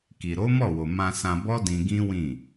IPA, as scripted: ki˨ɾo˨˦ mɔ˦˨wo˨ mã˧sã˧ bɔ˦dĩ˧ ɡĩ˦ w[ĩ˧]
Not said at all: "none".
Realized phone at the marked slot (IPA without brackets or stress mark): ĩ˦˨